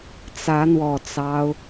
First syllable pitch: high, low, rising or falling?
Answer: rising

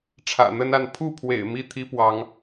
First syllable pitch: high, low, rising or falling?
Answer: low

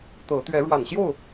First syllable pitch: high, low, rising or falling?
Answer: rising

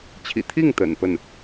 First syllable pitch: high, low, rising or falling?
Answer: low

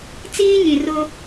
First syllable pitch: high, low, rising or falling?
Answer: high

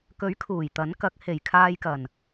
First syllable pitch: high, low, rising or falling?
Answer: rising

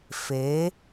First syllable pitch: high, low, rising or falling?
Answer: rising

